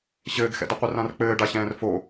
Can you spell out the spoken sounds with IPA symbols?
ɕ ɘː ɡ x ɛ̰ d ɘ qʷ ɘ r ã r k͡p ɘː ɖ a ɕ ɛ̃ː r f o

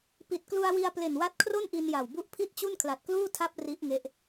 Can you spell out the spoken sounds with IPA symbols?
p i˨˩ t̚ k l u˧ a̯ w i˧ a̯ p l e˨˩ n w a˦˥ t̚ kʰ r o˥˩ n ʔ i˧ n j a˨˩ w b u˦˥ ʔ pʰ i˥˩ t̚ t͡ɕ u˥˩ n kʰ l a˨˩ t̚ k l uː˥˩ tʰ a˦˥ p̚ r i˦˥ ʔ ŋ e˦˥ ʔ

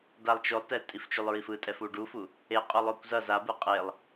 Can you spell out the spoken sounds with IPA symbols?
d a lˠ t͡ʃ o lˠ t ɛ tʼ i f t͡ʃ u lˠ ɹ i f ɯ tʼ ɛ f u ɖ u f u | e qʼ o lˠ o kʷ z ʌ z a b ɯ qʼ e lˠ

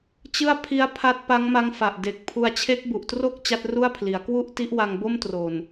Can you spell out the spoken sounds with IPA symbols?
t͡ɕ ɯ˥˩ a̯ pʰ i˦˥ a̯ pʰ a˦˥ t̚ p a˦˥ ŋ m a˦˥ ŋ f a˨˩ ʔ d e˨˩ k̚ pʰ u˧ a̯ t͡ɕʰ e˦˥ k̚ b u˨˩ ʔ t r o˥˩ k̚ t͡ɕ a˦˥ t̚ r u˥˩ a̯ pʰ l i˩˦ a̯ k w u˥˩ ʔ t i˦˥ ʔ w a˧ ŋ b o˥˩ m t r o˨˩ n

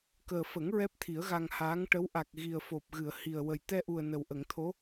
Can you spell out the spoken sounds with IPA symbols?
k əː˨˩ f ə˨˩˦ ŋ ɹ ɛ˦˥ p̚ t̪ʰ i˨˩˦ ə̯ ɣ a˧ ŋ h aː˧˥ ŋ ʈ ə˧˥ w ʔ a˨˩ k̚ ɣ i˨˩ ə̯ f o˨˩ p̚ ɣ ɨ˨˩˨ ə̯ h i˨˩ ə̯ w ə˨˩ j t̪ ɛ˧ ʔ u˨˩ ə̯ n ə˨˩ w ʔ ə˨˩˨ ŋ t̪ʰ o˧˥

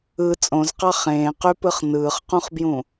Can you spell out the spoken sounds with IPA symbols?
ɯ t͡sʼ õ z q ɑ χ ẽː q y p ɯ χ n ɯː χ q ũ χ b j ũ

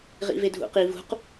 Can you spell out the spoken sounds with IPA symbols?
ʁ ḭ v e dʱ ṵ q i v ṳ q

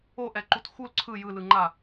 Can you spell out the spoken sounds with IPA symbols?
o ʔ ɛ ǃ u t x u l ǀʰ ɯ j ɯ l ɯ ŋ͡ǃ a

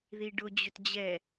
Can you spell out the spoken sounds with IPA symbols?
ð i ɖ ʊ d͡ʑ ʏ t d͡ʑ ɛ

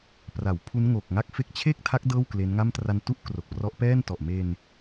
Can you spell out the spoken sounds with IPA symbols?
p r a˩˦ w pʰ u˦˥ n ŋ o˨˩ k̚ ŋ a˥˩ k̚ f e˦˥ k̚ t͡ɕʰ e˥˩ k̚ tʰ a˦˥ k̚ d ɤː˥˩ w k l e˦˥ n ŋ a˥˩ m t r a˧ n t u˥˩ ʔ k r o˨˩ k̚ p r ɔ˦˥ ʔ p ɛː˥˩ n t ɔ˨˩ ʔ m e˧ n

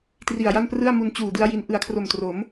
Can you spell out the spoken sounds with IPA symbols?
t r i˨˩ a̯ j a˥˩ n p r ɯ˥˩ a̯ m u˧ n t͡ɕ uː˨˩ d ɯ˦˥ a̯ j i˧ n ʔ ɯ˨˩ a̯ kʰ r o˨˩ m t r o˩˦ m

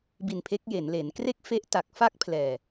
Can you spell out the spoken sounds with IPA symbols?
b i˧ n pʰ e˦˥ k̚ j e˩˦ n l e˩˦ n k r e˥˩ k̚ f e˦˥ ʔ t a˨˩ k̚ f a˥˩ k̚ pʰ l ɛː˨˩

